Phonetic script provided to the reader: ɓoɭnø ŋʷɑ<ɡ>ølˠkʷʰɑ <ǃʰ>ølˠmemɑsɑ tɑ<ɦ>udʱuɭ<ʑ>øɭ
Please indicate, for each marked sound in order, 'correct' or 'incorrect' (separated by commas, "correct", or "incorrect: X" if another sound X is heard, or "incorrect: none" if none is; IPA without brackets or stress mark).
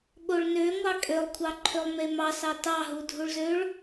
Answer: incorrect: kʼ, correct, correct, incorrect: z